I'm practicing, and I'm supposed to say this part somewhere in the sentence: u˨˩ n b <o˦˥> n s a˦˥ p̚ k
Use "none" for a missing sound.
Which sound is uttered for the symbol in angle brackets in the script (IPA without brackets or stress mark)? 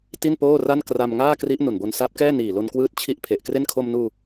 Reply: o˧